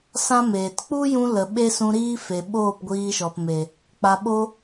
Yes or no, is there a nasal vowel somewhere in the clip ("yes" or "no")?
yes